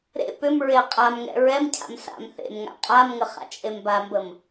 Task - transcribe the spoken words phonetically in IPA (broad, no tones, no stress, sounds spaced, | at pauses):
ɾ ḛ p ʏ m ɹ e qʼ a m ŋ ɛ̰ ɹ ɛ m cʰ a̰ m s a̰ m θ ḛ m ŋ a̰ qʼ a m ŋ ə χ a̰ t͡ʃʼ e m b a m b ə m